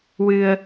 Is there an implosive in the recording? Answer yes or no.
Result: no